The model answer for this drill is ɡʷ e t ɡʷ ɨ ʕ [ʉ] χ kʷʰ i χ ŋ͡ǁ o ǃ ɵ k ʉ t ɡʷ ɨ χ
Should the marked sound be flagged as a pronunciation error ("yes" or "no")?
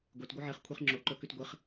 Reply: yes